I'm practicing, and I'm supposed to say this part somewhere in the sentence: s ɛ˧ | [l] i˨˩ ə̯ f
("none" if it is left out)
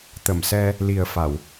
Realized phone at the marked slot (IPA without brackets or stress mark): l